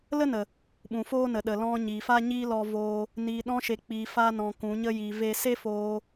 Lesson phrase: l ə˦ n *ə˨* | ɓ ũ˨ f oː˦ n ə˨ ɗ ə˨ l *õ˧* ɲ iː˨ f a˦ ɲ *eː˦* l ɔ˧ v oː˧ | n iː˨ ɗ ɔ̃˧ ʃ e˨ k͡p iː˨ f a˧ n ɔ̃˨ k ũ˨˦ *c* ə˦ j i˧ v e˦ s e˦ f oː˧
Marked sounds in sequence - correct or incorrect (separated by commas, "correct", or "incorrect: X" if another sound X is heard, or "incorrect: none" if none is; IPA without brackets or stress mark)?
correct, incorrect: ɔ̃˧, incorrect: iː˦, incorrect: ɲ